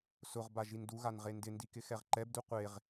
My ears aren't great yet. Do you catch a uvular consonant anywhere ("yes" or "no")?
yes